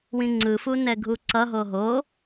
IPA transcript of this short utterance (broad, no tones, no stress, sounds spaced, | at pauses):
w ĩ ŋ͡ǀ ɯ f u n ɛ ɡʱ u ǀ ʌ ɦ o ɦ o